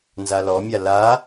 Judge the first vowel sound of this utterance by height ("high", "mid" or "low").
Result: low